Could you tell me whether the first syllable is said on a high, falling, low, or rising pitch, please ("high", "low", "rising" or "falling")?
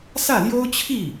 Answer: falling